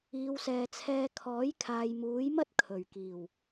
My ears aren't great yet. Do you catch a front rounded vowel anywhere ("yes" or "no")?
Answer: no